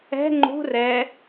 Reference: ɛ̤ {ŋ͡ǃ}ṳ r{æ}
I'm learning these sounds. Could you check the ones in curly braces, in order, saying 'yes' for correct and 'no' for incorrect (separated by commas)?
yes, no